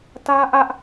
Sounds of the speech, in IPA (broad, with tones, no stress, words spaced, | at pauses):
tä˦ ʔä˦ʔ